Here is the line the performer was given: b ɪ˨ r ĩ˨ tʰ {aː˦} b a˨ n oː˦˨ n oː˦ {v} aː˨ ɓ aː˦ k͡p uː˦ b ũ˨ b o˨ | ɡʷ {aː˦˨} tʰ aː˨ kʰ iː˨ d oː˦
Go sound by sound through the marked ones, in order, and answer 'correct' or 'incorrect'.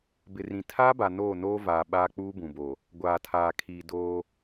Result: correct, correct, incorrect

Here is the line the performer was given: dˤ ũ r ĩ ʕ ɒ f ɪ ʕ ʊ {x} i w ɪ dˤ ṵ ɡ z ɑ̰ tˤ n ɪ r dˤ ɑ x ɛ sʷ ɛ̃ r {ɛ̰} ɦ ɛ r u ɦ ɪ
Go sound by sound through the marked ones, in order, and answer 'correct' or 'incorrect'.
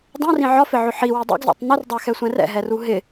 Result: incorrect, correct

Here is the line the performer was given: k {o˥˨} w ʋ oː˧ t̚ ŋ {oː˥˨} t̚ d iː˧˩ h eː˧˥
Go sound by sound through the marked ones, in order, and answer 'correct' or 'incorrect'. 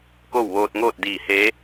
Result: correct, correct

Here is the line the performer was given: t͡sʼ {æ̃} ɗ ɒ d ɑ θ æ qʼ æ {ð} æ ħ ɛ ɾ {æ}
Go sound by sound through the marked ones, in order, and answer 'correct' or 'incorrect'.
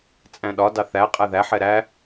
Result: correct, correct, correct

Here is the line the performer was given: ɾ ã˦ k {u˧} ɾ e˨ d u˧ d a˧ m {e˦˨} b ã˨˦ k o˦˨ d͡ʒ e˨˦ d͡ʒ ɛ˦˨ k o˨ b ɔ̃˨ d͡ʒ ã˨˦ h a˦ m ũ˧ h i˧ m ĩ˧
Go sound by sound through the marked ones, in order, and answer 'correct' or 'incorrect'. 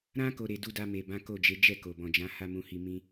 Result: incorrect, incorrect

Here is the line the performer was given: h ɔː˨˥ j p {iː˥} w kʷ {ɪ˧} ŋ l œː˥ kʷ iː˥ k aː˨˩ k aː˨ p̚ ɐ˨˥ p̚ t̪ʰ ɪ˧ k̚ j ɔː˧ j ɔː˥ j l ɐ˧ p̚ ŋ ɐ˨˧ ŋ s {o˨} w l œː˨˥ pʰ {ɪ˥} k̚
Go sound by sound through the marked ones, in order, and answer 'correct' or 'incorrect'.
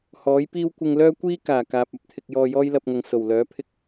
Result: correct, correct, incorrect, correct

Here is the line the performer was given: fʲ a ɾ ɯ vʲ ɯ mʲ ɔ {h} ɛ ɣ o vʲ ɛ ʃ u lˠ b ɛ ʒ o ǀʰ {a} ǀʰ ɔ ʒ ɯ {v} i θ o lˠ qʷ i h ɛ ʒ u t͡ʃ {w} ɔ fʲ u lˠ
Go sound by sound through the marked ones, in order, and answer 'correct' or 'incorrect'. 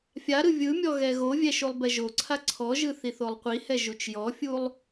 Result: incorrect, correct, incorrect, incorrect

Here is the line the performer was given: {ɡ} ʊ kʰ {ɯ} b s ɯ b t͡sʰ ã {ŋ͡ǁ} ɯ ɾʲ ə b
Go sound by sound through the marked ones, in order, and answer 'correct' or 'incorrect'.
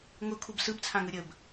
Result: incorrect, incorrect, incorrect

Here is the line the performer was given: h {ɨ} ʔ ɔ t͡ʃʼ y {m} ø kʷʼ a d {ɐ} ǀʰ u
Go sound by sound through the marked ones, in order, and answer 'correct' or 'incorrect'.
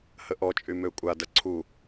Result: incorrect, correct, correct

